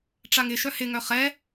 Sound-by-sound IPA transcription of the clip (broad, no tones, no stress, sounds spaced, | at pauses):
ʈ͡ʂ a ŋ ɪ ʃ œ h ɪ ŋ œ χ ɛ